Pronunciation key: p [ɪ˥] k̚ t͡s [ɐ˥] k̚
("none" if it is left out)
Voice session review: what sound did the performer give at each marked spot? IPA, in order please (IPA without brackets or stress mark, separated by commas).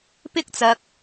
ɪ˥, ɐ˧